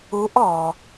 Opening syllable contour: rising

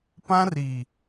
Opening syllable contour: high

